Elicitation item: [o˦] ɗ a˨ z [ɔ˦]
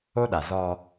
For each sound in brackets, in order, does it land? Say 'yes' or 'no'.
yes, yes

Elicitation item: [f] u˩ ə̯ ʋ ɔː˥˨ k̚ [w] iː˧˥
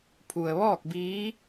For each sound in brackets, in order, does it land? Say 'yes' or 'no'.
no, no

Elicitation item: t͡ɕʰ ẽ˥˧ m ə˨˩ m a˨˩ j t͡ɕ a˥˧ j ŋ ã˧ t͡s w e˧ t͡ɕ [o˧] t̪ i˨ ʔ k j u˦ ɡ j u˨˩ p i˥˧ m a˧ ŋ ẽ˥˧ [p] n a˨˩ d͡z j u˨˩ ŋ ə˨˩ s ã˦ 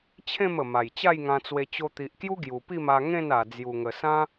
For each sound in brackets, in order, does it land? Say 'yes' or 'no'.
yes, no

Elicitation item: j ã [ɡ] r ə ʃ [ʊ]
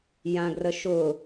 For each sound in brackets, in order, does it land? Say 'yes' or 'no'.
yes, yes

